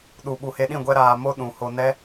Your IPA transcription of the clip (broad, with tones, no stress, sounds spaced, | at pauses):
ɗ u˨ ɓ u˨ h e˧ ɗ ĩ˦˨ ɡʷ ɛ˦ ɾ aː˧ m o˦ ɗ ũ˨ h o˧ n ɛ˦